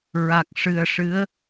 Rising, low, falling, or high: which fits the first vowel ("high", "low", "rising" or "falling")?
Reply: low